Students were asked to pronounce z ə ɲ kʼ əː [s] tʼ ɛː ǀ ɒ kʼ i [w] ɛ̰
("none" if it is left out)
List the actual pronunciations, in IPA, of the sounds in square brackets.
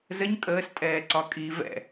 s, v

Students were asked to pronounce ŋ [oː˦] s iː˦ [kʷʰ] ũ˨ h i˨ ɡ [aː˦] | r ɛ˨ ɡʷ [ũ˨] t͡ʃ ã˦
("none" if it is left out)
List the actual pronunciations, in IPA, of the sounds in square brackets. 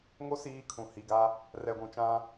o˦, kʰ, a˦, ũ˨

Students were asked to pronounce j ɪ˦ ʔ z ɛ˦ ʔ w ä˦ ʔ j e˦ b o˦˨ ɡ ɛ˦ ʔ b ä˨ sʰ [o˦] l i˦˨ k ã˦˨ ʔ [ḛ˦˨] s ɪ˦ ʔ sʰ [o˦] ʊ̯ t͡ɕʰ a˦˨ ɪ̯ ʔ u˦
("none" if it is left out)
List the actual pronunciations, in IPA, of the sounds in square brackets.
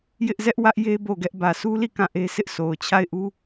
u˦, e˦, o˨

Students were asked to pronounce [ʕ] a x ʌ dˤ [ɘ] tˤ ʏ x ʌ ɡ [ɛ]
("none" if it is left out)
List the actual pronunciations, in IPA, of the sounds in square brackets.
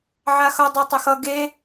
ʕ, ɛ, e

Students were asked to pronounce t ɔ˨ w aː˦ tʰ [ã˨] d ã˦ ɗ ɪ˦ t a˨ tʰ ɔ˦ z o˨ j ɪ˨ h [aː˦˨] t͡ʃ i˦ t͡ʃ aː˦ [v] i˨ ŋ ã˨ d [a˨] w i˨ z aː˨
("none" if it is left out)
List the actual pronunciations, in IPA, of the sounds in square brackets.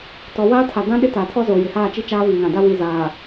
a˨, aː˦˨, v, a˦

